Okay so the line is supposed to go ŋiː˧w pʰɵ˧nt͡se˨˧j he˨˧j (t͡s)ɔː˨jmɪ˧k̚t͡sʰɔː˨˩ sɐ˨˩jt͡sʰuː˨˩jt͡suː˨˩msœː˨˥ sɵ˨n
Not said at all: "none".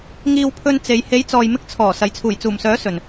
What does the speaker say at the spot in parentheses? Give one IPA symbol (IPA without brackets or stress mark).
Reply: t͡s